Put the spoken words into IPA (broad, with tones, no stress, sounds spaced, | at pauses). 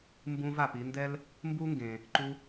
m b ũ˧ v a˩ p i˧ n d ɛ˥ l | m b u˥ ŋ ɡ ẽ˩ | ǃ u˧